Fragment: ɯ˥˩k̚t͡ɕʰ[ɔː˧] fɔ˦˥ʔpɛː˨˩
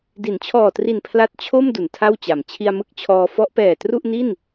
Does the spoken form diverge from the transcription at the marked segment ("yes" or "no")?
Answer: no